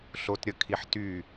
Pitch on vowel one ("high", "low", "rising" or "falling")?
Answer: high